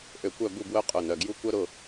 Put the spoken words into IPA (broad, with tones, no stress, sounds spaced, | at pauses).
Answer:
ʔ ø˧˩ kʷ œ˥˨ b u˥˨ b w œ˦˥ qʼ ʊ˩˧˩ n œ˩˧˩ ɡ j u˦˥ kʷ œ˦˥ ɾ ʊ˩˧˩